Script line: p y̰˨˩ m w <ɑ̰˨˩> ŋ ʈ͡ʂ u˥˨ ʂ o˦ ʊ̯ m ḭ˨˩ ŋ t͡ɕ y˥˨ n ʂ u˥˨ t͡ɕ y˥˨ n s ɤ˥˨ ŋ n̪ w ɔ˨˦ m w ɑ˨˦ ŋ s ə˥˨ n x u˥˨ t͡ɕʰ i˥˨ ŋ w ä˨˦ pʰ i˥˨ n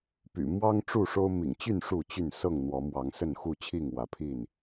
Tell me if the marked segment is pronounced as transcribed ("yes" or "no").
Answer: no